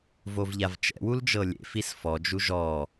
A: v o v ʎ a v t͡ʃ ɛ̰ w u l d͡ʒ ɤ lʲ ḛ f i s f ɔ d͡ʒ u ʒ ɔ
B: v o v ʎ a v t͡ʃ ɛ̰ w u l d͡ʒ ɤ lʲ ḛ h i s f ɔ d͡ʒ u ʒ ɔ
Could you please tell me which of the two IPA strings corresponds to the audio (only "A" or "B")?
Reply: A